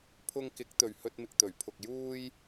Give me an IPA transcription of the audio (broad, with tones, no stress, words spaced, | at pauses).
pʰʊ˧ŋkɪ˨˥k̚t̪ɵ˨ɥ hɵ˧t̚ mɪ˨k̚t̪ɵ˨˩ɥ pʰʊ˨k̚juː˧j